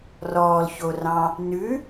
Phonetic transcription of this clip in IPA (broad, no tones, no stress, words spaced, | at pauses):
rɔːlçorɑ̃ | nʉ